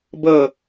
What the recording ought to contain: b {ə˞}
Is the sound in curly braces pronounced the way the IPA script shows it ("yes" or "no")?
no